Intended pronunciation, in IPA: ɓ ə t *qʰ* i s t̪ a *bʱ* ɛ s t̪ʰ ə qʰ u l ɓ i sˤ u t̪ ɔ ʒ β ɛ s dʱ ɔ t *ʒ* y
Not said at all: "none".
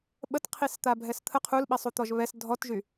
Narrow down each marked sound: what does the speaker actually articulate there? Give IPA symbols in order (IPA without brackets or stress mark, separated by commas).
qʰ, bʱ, ʒ